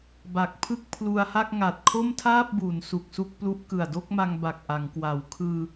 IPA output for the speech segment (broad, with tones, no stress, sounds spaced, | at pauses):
b a˨˩ k̚ pʰ ɯ˥˩ k̚ pʰ l u˧ a̯ h a˥˩ k̚ ŋ a˨˩ t̚ kʰ o˥˩ m tʰ aː˥˩ p̚ b u˩˦ n s u˨˩ k̚ s u˥˩ k̚ p l u˦˥ ʔ k ɯ˨˩ a̯ d o˥˩ k̚ m a˧ ŋ b a˨˩ k̚ ʔ a˩˦ ŋ k w a˩˦ w kʰ ɯː˧